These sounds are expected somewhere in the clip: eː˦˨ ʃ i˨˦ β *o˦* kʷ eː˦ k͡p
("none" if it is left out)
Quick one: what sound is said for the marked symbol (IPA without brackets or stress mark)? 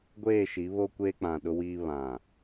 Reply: o˦